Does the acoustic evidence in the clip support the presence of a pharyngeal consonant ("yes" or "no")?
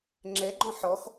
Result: yes